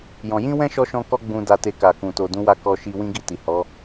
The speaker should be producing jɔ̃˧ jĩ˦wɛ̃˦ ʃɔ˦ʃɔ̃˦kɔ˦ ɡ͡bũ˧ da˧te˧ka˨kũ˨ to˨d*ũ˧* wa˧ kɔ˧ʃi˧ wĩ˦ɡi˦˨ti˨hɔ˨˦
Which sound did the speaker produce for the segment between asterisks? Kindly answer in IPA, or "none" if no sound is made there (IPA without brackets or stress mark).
ũ˨˦